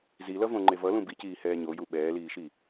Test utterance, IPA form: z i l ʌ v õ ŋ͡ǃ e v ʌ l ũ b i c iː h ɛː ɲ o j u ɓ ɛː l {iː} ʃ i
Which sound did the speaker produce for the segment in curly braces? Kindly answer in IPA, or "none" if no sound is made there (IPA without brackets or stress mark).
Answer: iː